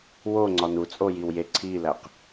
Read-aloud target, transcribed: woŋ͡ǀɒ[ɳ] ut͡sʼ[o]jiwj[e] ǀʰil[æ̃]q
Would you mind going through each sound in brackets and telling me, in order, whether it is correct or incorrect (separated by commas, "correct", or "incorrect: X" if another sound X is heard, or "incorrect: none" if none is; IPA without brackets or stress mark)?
incorrect: n, correct, correct, incorrect: æ